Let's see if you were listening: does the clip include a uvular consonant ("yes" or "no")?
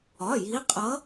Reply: yes